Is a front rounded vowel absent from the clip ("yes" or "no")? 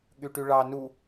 no